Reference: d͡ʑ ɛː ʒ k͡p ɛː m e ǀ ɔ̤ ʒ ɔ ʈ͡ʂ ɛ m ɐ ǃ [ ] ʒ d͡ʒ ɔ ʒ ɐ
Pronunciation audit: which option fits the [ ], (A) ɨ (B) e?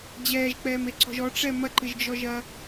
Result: A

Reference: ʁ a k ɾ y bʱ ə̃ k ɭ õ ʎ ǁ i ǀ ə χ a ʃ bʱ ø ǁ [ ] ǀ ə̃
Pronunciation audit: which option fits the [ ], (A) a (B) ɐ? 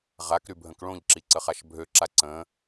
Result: A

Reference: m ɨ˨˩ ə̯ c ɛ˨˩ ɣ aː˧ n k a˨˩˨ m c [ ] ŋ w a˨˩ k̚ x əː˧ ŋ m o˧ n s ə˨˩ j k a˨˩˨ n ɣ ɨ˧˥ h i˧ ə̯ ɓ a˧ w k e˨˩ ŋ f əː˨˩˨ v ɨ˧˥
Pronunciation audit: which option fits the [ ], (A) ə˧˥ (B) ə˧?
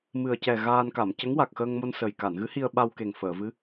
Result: A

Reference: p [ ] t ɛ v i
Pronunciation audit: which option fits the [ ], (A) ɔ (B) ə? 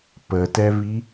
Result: B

